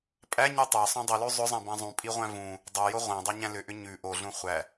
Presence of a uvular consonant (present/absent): present